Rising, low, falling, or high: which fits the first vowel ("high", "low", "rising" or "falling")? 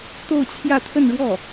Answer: falling